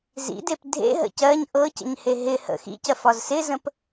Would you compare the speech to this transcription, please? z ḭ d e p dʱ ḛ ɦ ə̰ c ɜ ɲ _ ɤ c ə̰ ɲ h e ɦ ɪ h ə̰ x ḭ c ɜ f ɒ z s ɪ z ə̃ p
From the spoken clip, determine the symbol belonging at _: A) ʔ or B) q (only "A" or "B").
A